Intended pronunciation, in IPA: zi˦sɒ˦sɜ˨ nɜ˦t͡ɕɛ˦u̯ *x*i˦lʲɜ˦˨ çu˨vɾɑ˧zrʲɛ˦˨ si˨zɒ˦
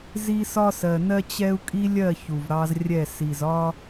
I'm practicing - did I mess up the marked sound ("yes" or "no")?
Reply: yes